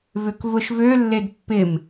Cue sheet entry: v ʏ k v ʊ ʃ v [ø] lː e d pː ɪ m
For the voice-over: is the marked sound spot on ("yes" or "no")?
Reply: yes